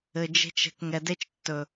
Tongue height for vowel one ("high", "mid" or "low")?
mid